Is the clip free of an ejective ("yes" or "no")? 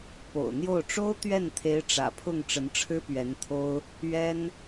yes